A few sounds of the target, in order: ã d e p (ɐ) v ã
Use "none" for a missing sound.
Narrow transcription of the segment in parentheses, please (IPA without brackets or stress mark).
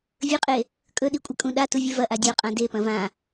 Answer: ɐ̃